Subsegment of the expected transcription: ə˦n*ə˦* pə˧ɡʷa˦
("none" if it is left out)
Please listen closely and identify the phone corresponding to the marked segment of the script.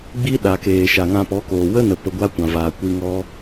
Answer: ə˨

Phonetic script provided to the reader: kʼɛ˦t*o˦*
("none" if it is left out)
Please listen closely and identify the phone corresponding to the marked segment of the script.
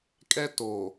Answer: o˨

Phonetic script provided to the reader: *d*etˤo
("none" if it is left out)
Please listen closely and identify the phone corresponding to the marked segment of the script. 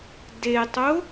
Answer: d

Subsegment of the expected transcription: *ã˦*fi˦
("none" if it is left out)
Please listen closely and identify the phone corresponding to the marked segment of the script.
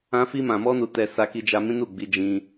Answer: ã˦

